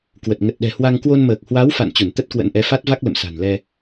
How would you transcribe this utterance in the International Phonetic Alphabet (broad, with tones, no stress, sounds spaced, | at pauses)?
k w ə˨˩ t̚ ŋ ə˨˩ t̚ ɗ ɛ̤˨˩ h w a˧ ŋ k w o˧ n m əː˨˩ k̚ h w a˨˦ w f a̰˧˨ n t͡ɕ u˧˩ n t̪ ə˦˥ t̚ k w ə̰˧˥ n ʔ ɛ˨˦ f a˦˥ t̚ v a˦˥ k̚ l ə̰˧˨ m s a̤˨˩ n l ɛ˧